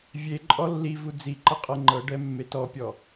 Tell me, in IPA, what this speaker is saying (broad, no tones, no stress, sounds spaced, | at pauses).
vʲ e ǃʼ ɔ lː i v u d͡z i ǃ ə qʼ ɤ ŋ͡ǃ ɤ ɖ ɛ mː e t ɔ pʲ ɔ